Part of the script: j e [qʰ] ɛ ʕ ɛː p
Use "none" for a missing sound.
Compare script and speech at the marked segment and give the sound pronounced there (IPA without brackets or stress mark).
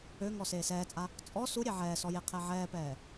qʰ